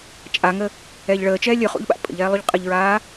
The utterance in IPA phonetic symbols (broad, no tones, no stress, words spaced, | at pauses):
t͡ʃʼaŋə | ɛːʎɭəːt͡ʃɛː lʲɵχṵʎɓa̰ pʼə̰ʎ ɛːlˠuʎqʼəʎɹaː